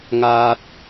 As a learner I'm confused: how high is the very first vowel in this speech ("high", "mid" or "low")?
low